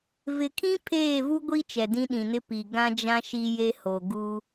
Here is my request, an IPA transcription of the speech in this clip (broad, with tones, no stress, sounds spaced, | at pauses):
v ɪ˨ kʰ ĩ˦ pʰ eː˦˨ v u˦ ɡʷ i˦ t͡ʃ ɛ˨ d ĩ˦ ɗ ĩ˨ n ɪ˦ p i˨ ɡ ã˦ d͡ʒ ã˦ ʃ i˦ j e˦ h o˨ ɡ u˦